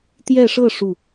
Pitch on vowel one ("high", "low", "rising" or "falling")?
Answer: falling